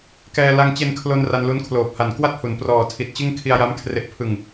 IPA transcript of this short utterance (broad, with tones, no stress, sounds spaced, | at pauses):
k ɛː˧ l a˧ ŋ t͡ɕ e˧ n kʰ l o˧ n r a˧ n l u˦˥ n kʰ l oː˨˩ p̚ h a˨˩ n k w a˥˩ t̚ h u˩˦ n p r ɔː˨˩ tʰ i˨˩ t̚ t͡ɕ ɯ˥˩ ŋ kʰ i˧ a̯ j a˦˥ m kʰ r e˨˩ ʔ pʰ ɯ˨˩ ŋ